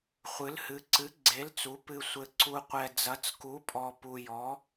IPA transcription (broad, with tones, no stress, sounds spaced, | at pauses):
χʷ ɨ˩˧ l h ɨ˩˧ ǀ ɨ˩˧ ɡ͡ǀ e˩˧ l t͡s u˩˧ p ɨ˩ sʷ ɘ˩ ǀ u˩ qʷ ɛ˩ d͡z ɐ˩˧ t͡s k u˩˧ pʼ ɔ˩ p u˩ j ɔ˩˧